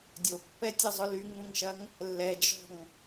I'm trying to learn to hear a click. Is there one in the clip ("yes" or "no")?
no